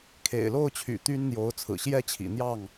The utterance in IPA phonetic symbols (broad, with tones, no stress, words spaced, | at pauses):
kʰḛ˨˩ɪ̯lo˥˨ʊ̯t͡ɕʰy̰˨˩ t̪y˦nn̪jo˨˦ʊ̯ t͡sʰɹ̩˨˩ɕjɛ˦t͡ɕʰḭ˨˩n̪jɑ˥˨ŋ